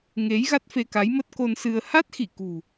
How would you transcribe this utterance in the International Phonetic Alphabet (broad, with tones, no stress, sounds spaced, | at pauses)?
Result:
ŋ e˨˦ j ɣ a˦˥ t̚ f e˧ k a˨˦ j m ə˦˥ t̚ k o˧ n s ɨ˧ ə̯ h a˦˥ t̚ x i˧˩ k ṳ˨˩